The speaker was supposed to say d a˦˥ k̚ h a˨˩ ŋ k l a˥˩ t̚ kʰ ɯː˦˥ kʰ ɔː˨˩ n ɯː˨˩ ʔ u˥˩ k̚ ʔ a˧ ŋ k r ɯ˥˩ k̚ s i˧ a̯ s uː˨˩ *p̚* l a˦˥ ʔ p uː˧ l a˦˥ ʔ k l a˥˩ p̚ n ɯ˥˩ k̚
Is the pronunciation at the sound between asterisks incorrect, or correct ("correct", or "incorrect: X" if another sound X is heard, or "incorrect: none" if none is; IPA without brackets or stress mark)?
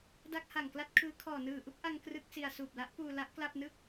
correct